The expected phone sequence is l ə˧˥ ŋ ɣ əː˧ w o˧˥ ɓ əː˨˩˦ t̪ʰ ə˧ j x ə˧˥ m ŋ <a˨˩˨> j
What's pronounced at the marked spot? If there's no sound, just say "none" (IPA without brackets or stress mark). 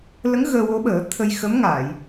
a˨˩˨